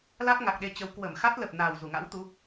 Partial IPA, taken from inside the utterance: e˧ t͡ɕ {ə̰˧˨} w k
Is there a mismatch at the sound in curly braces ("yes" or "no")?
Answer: yes